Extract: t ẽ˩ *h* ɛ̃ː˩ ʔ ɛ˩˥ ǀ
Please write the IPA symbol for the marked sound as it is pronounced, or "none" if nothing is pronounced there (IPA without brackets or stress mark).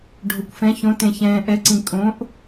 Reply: ç